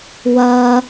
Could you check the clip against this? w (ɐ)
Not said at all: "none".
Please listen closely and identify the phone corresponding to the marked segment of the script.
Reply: ɐ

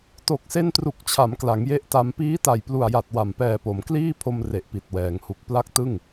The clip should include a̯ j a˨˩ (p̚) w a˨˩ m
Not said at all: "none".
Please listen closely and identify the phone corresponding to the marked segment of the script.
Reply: t̚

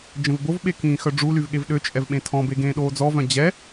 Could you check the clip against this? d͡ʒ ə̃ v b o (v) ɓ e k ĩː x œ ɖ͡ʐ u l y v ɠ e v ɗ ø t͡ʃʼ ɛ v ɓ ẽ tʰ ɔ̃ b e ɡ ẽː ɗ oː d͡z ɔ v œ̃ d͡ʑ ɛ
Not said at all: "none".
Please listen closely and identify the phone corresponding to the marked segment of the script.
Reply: v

